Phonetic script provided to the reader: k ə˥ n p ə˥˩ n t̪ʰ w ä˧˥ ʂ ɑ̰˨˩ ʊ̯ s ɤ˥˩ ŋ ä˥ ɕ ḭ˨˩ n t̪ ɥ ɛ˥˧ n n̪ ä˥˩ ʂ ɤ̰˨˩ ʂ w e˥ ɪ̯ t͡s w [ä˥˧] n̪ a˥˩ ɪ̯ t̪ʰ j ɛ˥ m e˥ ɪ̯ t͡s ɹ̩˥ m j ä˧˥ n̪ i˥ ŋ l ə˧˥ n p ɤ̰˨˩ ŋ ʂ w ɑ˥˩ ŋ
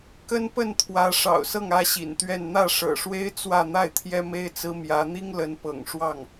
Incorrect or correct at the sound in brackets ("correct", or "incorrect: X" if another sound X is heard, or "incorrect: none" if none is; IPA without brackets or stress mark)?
correct